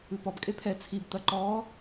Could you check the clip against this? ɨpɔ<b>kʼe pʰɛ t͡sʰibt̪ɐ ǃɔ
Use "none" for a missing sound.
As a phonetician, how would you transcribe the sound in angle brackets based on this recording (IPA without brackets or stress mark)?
b